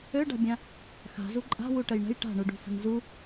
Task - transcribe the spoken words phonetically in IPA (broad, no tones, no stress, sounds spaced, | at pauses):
ø ɖ a̤ bʲ ã | x a̤ z u ǃʼ a̤ w u ʈ ə j ɳ ə̤ j ʈ a̤ ɳ u ɖ ṳ f ə̤ n z u